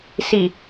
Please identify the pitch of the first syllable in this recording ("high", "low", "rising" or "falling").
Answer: low